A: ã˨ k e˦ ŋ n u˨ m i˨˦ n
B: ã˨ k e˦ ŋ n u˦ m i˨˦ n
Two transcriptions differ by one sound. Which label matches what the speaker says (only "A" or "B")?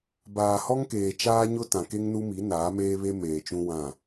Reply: B